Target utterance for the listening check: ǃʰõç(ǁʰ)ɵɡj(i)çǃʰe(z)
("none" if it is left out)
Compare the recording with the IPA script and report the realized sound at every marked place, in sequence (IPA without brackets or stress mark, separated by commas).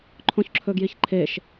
ǁʰ, i, ʃ